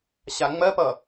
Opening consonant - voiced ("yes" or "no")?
no